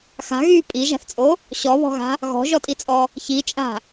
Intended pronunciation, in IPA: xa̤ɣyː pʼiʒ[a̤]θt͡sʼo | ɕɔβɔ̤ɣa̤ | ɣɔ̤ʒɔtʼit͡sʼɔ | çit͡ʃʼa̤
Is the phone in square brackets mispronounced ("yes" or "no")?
no